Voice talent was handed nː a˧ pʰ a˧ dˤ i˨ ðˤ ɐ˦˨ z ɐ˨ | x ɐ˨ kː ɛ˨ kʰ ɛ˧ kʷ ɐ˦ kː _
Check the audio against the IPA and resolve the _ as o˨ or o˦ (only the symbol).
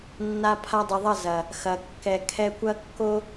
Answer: o˦